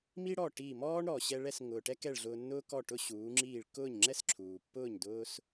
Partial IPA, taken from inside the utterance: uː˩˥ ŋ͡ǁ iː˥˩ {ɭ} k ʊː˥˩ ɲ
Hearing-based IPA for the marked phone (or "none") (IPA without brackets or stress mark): ɭ